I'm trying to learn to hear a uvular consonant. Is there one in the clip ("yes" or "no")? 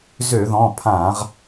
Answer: yes